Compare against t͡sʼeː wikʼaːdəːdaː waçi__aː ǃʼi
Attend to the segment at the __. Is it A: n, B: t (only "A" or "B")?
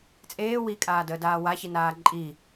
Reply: A